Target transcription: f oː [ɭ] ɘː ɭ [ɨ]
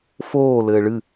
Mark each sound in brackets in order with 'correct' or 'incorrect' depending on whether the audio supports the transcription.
incorrect, correct

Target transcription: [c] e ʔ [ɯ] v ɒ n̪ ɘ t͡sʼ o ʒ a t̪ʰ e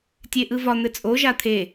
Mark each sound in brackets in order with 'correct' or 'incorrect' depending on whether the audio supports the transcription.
incorrect, correct

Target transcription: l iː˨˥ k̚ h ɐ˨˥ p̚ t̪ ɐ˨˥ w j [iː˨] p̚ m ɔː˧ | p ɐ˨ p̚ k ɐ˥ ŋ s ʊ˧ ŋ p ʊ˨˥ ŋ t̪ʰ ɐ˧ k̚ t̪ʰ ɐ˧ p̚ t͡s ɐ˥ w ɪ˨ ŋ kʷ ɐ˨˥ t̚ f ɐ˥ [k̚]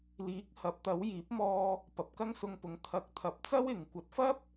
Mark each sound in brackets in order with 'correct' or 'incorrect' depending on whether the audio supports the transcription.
incorrect, incorrect

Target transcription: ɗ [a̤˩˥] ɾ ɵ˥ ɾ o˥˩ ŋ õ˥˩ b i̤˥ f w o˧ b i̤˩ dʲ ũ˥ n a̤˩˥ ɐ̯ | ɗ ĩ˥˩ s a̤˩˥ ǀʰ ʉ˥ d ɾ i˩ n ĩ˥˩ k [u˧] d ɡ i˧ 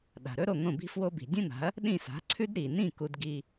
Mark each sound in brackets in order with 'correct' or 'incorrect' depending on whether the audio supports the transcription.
incorrect, correct

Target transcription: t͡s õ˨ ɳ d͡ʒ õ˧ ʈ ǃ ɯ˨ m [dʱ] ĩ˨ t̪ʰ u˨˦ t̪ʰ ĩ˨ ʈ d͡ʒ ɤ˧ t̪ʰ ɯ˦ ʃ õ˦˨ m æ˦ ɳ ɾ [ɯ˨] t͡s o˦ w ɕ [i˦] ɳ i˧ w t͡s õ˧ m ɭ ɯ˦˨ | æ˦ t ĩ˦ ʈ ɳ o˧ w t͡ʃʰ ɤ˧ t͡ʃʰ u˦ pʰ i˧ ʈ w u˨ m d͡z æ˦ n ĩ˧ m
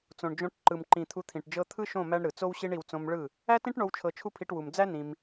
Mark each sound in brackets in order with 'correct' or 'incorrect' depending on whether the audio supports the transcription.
incorrect, correct, correct

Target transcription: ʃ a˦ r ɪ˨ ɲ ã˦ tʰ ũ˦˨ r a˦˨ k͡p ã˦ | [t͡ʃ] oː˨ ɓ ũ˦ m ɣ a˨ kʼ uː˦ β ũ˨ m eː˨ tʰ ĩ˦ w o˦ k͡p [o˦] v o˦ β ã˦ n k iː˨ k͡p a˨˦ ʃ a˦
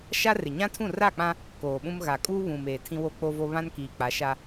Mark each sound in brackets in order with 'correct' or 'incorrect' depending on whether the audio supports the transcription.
incorrect, correct

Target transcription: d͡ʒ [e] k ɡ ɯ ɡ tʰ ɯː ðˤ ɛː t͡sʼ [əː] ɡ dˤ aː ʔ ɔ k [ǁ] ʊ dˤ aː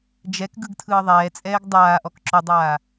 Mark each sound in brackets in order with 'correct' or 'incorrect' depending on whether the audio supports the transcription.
incorrect, incorrect, correct

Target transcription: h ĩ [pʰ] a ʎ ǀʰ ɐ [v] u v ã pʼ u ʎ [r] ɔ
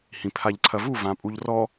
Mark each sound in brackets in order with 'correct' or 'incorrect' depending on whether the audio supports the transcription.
correct, correct, correct

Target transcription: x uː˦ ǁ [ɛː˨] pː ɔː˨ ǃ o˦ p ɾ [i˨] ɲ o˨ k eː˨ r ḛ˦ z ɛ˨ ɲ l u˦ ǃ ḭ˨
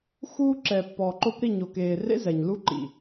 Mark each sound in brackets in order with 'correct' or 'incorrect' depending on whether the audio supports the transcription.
incorrect, incorrect

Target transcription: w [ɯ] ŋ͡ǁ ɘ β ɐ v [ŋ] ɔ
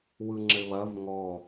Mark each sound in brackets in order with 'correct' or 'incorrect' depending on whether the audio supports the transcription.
correct, correct

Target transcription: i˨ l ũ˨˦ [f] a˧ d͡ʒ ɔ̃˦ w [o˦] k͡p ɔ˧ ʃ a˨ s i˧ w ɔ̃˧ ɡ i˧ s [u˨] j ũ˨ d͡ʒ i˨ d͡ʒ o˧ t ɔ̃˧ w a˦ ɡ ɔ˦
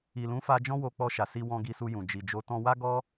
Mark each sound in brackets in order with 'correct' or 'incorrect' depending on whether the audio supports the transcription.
correct, incorrect, incorrect

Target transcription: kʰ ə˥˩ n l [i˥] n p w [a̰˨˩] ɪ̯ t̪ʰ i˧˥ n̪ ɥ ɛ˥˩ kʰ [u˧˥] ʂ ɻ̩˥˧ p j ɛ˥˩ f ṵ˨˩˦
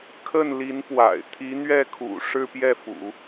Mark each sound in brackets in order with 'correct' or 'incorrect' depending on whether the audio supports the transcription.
incorrect, correct, incorrect

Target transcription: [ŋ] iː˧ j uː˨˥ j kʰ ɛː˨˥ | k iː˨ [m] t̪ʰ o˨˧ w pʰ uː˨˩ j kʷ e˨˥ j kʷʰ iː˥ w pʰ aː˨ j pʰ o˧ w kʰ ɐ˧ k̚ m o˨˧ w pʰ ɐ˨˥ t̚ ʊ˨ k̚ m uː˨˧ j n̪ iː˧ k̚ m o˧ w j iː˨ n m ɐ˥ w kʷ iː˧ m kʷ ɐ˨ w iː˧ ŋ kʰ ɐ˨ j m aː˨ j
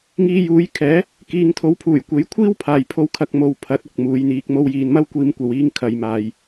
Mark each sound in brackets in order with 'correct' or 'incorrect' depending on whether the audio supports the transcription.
correct, incorrect

